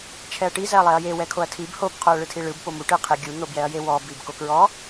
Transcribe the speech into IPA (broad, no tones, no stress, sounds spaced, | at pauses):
t͡ʃʰ ɛ ɐ̯ ʈ i z ɛ ɐ̯ lˠ ɛ ɐ̯ j e w ɛ kʰ o ɐ̯ tʰ i b h o b qʰ o ɐ̯ ɭ ɯ tʰ i ɭ ɯ b p o m u ʈ ɯ qʰ e ɡʲ u n̪ o b j ɛ ɐ̯ j e w ɔ b i b k o k ɹ ɔ